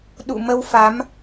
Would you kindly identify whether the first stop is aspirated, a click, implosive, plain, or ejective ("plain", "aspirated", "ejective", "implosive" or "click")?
implosive